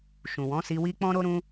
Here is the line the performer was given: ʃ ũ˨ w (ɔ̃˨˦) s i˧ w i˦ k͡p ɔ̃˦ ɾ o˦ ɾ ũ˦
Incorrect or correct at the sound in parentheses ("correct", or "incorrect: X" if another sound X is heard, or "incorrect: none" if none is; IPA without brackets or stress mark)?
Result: correct